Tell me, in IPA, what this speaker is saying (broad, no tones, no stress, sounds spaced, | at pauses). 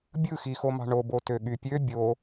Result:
bʲ ɯ x i x o m ɑ̤ ɳ o b o t ø ɠ y pʲ ø bʲ o